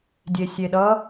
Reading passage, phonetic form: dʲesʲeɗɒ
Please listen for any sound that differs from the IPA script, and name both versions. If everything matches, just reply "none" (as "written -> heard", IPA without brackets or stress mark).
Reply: ɒ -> ʌ